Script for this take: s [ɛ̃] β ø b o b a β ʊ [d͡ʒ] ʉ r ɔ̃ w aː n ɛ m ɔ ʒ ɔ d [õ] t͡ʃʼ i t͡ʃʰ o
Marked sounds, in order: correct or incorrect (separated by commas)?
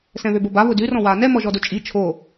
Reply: correct, incorrect, incorrect